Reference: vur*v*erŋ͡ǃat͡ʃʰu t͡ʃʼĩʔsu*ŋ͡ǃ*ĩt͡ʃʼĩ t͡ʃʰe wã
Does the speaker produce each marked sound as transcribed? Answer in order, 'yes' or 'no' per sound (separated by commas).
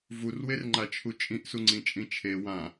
no, no